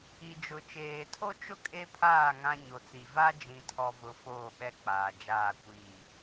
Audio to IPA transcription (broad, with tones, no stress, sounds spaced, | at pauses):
i˨ d͡ʒ ʊ˨ t͡ʃ eː˨ tʰ o˦ t͡ʃ ʊ˦ kʼ e˦ pʰ aː˦˨ ŋ ã˦ ɲ o˨ t͡s i˨ v a˦ d͡ʒ ĩ˨ tʰ ɔ˨ v ʊ˨ f oː˦˨ ɓ ɛ˦ k͡p aː˨ d͡ʒ aː˦˨ kʷ iː˦˨